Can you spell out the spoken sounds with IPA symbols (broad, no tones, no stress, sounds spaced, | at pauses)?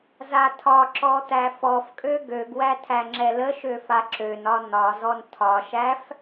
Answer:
z a tʰ ɒ ǁ ɔ t̪ æ f ɔ f kʼ ø ɡ ø ɡ w æ tʰ æ ŋ͡ǁ ɛ l ə ʃ ø f a ǁ ø n ɒ n̪ ɒ z ɔ n tʰ ɒ ʃ æ f